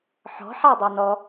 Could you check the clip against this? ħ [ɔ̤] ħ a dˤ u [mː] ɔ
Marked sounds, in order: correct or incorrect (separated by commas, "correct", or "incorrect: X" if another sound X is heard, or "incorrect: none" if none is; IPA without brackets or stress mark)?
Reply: correct, incorrect: n